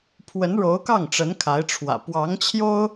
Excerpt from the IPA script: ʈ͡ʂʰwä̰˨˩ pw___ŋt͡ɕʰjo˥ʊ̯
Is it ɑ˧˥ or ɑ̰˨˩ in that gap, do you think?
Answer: ɑ˧˥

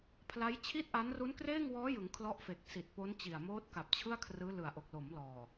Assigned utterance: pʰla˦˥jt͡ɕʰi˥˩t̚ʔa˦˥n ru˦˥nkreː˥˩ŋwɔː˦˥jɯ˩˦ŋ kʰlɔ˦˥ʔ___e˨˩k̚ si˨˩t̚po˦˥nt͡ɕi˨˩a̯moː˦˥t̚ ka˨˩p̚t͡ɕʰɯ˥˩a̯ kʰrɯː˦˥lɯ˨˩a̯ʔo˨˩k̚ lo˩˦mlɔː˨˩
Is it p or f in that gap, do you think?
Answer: f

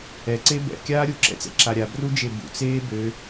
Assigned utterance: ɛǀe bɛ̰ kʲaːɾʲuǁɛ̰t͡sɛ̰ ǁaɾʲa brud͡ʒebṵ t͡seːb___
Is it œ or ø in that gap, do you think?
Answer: ø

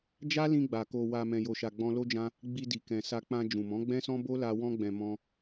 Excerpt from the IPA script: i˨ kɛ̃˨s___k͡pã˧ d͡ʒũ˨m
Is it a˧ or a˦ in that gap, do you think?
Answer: a˧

